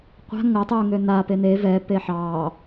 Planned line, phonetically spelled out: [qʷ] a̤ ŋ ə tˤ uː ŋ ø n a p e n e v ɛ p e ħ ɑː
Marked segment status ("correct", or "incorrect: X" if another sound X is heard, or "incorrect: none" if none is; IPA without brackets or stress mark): correct